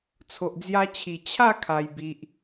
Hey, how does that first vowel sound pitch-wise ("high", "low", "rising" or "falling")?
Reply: low